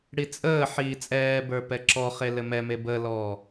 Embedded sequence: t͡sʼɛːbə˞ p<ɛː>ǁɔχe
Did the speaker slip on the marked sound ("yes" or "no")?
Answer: yes